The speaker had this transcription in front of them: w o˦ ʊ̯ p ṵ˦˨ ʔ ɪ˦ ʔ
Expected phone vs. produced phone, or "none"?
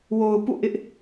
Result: o˦ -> o˨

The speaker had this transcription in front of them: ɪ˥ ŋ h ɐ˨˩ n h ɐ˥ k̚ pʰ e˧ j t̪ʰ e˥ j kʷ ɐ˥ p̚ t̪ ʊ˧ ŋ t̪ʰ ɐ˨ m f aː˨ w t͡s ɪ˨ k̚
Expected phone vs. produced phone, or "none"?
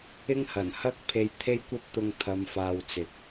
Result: none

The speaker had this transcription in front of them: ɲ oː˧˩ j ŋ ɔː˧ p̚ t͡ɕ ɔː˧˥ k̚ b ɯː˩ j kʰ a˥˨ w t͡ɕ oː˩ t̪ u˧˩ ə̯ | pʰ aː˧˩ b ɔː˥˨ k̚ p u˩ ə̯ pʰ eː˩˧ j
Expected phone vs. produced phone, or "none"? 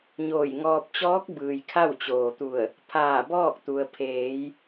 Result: p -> t̪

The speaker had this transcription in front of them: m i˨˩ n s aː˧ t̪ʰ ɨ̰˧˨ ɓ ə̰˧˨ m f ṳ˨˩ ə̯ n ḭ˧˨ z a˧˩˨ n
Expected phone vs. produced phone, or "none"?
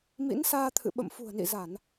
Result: i˨˩ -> ḭ˧˥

